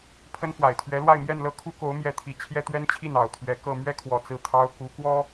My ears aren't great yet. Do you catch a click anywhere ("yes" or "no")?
no